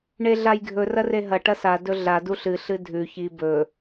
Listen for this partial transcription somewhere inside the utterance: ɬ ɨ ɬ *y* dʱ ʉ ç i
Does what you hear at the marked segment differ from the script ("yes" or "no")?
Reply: yes